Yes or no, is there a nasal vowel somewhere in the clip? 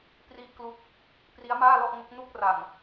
no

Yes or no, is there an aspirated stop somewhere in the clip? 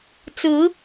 no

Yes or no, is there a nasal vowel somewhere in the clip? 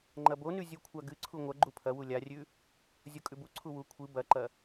no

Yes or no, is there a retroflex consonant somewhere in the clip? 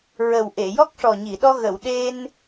yes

